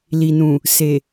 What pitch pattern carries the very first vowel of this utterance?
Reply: low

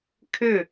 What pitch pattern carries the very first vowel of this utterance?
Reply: falling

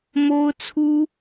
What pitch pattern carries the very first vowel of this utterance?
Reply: high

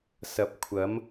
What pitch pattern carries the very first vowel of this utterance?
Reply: low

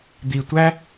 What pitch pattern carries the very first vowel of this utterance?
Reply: low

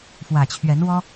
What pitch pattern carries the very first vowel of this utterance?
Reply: low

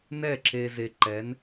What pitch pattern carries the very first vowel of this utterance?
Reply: falling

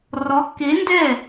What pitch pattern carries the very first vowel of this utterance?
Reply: rising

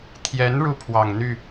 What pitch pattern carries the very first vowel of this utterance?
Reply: rising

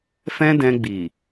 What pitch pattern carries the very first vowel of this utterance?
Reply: high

